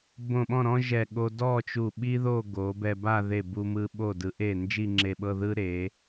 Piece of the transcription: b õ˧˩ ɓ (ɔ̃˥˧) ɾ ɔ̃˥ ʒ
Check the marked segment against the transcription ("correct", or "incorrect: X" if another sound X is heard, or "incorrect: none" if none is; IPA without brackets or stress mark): correct